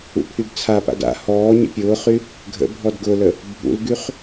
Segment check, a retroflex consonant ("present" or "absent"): absent